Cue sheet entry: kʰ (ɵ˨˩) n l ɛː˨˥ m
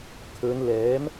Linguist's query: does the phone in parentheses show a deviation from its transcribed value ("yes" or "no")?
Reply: yes